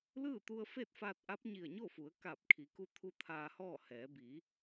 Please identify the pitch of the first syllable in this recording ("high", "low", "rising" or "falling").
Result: falling